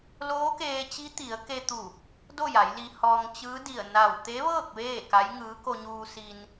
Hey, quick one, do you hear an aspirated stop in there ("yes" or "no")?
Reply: no